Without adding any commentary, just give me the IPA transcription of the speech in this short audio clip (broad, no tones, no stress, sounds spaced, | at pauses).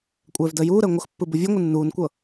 kʷʼ ɛː v d əː j uː ɾ əː ŋʷ ə x pː ɯ b u vʲ u ŋʷ ɯ nː uː n kʷ ɤ